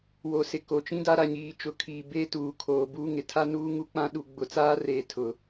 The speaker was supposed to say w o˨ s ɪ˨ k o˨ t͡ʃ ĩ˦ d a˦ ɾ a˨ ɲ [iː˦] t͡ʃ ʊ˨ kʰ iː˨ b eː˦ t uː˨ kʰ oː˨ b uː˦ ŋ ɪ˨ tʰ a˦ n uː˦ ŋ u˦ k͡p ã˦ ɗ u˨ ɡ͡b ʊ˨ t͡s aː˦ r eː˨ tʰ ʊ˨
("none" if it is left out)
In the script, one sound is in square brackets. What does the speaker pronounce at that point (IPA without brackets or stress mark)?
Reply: iː˨